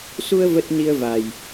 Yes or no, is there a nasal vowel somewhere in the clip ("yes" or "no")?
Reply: no